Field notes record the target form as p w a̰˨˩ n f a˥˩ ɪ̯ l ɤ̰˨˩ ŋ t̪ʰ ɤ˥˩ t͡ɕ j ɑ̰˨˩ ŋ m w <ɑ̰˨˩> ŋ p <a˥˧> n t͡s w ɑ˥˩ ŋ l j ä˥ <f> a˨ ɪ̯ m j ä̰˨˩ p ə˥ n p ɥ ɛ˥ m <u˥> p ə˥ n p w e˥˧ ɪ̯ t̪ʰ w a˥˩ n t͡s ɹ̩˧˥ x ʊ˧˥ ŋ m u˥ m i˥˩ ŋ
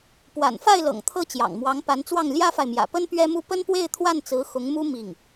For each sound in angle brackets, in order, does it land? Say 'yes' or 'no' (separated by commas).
no, no, yes, yes